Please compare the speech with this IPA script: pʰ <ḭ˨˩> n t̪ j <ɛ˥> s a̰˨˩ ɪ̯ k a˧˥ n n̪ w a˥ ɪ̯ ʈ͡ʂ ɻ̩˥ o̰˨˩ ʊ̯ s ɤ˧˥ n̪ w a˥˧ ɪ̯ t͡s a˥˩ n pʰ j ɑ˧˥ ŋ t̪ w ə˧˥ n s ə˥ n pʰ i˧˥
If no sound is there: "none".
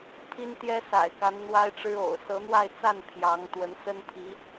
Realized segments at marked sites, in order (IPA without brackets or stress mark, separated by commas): i˥, ɛ˥